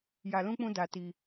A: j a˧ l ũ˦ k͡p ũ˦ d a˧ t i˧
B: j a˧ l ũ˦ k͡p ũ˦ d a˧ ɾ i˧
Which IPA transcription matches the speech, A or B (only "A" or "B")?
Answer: A